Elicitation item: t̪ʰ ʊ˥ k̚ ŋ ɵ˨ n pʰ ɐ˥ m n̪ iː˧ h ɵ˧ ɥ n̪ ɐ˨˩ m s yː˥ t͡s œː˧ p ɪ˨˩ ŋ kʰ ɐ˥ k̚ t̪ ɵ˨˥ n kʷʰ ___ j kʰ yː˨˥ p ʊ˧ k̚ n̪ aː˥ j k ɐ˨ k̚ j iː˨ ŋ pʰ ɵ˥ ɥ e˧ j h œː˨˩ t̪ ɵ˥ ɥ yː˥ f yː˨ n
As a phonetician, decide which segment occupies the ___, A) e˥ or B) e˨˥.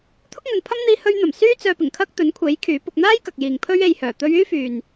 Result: B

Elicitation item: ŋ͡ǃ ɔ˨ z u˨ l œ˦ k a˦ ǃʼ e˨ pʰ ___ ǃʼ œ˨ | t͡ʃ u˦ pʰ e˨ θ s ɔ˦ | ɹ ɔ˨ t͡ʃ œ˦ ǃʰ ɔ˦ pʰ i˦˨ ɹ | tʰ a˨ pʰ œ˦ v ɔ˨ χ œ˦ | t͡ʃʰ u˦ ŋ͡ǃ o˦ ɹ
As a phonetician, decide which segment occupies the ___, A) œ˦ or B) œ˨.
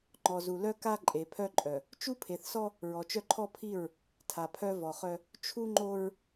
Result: A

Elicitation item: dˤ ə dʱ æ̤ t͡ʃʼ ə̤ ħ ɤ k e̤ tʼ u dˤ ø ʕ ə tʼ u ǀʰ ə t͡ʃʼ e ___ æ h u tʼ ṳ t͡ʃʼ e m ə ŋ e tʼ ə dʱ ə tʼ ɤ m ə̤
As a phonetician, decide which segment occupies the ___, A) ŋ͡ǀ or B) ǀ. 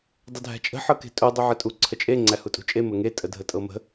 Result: A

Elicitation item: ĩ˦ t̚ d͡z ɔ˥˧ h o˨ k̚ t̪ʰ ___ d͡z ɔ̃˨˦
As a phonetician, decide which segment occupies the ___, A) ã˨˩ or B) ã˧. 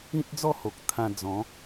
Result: B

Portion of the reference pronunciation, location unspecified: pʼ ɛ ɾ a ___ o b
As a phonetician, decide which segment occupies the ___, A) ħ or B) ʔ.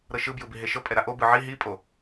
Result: B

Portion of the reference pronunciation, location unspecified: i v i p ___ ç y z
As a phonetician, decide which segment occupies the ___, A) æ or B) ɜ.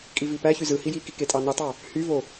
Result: A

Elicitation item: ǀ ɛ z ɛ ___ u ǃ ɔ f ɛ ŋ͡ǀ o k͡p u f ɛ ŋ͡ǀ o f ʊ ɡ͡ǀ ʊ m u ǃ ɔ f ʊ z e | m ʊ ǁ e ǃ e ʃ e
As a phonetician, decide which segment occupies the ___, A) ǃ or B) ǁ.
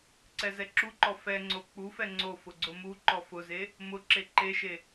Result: B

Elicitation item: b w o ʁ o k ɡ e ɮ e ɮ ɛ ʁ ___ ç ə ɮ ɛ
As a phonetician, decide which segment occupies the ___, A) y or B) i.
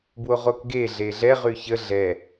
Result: A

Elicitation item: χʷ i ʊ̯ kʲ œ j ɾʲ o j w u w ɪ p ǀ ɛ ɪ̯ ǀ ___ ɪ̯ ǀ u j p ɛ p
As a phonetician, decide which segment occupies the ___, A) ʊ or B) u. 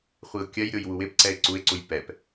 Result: B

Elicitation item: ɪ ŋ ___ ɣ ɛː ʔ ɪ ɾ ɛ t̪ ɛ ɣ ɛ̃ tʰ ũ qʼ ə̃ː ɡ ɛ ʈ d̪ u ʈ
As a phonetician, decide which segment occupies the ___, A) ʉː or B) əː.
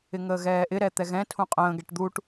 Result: B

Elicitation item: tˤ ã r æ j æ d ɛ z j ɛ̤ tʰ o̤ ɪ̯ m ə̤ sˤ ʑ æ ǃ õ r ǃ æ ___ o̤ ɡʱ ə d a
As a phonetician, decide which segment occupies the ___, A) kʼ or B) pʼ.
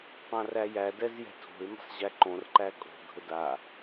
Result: A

